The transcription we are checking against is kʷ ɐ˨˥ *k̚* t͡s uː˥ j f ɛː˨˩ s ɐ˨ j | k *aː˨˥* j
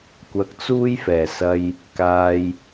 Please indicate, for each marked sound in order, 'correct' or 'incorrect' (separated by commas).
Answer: correct, incorrect